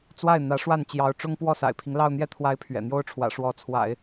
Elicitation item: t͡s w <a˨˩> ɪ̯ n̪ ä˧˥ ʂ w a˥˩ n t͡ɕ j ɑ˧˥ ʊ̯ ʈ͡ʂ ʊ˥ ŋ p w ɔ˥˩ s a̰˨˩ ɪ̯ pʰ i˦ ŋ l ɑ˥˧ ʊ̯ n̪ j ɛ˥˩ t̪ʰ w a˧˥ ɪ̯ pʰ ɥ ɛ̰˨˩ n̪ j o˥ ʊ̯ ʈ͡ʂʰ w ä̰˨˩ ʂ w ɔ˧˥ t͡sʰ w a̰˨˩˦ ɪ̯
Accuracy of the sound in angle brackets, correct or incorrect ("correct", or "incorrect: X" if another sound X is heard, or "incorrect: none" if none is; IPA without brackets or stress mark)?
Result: incorrect: a˥˩